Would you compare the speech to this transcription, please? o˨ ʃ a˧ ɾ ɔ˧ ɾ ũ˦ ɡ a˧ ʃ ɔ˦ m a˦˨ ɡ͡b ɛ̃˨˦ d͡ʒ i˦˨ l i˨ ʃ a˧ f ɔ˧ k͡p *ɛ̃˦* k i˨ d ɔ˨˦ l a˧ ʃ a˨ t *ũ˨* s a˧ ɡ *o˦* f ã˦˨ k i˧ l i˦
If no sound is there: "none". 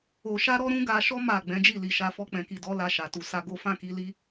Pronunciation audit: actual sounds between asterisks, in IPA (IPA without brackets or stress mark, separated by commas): ɛ̃˨, u˨, o˦